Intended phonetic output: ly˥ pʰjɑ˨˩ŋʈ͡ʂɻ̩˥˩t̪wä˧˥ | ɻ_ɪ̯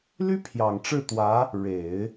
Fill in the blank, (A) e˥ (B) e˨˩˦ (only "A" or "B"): B